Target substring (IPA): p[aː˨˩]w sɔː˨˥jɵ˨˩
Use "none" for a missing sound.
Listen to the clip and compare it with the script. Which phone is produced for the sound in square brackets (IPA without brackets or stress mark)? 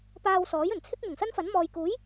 aː˧